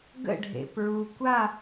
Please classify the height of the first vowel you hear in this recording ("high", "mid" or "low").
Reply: mid